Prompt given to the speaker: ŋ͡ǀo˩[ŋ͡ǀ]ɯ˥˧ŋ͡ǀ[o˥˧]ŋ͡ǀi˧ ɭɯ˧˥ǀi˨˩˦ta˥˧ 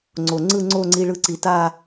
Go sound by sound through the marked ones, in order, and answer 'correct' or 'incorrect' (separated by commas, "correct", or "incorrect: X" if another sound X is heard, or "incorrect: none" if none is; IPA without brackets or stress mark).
correct, correct